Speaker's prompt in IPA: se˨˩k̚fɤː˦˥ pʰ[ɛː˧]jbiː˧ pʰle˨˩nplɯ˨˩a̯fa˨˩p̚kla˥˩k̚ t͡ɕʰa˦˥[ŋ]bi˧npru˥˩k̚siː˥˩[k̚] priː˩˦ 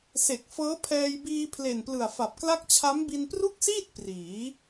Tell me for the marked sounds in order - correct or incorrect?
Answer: correct, incorrect, incorrect

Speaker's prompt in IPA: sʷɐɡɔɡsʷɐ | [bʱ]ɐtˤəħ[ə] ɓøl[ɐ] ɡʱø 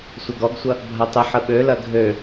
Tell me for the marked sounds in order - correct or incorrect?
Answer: correct, correct, correct

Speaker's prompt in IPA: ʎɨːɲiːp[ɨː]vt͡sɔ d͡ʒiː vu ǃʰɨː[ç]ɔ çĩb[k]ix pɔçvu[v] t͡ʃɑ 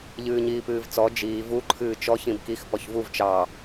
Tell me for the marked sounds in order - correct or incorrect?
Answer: correct, incorrect, correct, correct

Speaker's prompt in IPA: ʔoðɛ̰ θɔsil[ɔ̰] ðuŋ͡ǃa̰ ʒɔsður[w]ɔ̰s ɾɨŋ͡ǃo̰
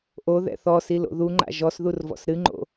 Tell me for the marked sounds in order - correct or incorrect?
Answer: incorrect, incorrect

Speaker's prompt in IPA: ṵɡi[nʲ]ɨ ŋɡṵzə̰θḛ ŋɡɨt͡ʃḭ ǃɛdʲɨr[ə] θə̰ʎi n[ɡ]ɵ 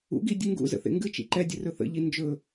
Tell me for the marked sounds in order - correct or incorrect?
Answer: incorrect, incorrect, incorrect

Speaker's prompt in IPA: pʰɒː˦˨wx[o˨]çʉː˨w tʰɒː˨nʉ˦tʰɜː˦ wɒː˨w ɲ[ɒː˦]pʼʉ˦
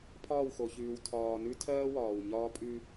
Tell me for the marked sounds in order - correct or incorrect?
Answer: correct, correct

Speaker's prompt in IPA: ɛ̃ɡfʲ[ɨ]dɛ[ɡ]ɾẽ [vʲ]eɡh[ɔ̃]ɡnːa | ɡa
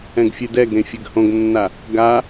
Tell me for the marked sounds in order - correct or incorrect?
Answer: correct, correct, incorrect, incorrect

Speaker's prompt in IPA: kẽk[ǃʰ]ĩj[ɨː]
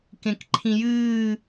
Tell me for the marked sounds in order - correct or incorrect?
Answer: correct, correct

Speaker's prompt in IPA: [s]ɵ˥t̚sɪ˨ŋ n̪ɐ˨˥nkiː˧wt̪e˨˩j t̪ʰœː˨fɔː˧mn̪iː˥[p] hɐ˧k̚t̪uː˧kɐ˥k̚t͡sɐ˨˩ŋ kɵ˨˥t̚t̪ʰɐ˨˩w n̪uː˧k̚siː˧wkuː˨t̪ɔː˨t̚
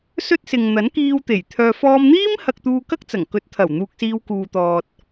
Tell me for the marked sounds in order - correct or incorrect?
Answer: correct, incorrect

